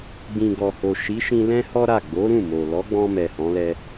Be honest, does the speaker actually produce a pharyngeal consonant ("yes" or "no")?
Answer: no